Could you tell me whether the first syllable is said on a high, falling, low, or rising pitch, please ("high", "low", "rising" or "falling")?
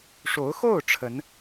rising